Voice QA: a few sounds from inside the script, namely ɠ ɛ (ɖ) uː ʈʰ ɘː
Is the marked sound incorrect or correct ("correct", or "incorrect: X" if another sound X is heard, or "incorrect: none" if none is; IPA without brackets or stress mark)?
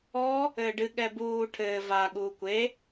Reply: incorrect: b